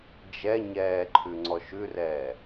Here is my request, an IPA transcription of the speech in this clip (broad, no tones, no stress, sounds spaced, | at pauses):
d͡ʒ ɛ ɲ ɛː ǃʰ ʉ ŋ͡ǀ ɔ ʃ ʉ r ɛː